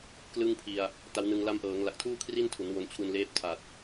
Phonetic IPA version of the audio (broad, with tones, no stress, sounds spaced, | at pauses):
k l ɯ˥˩ ŋ pʰ i˧ a̯ | t a˦˥ w n ɯ˧ ŋ l a˦˥ m ʔ ɤː˩˦ ŋ l a˨˩ k̚ tʰ uː˥˩ kʰ r i˥˩ n tʰ u˩˦ n w o˧ n t͡ɕʰ u˧ n l eː˦˥ p̚ tʰ a˨˩ t̚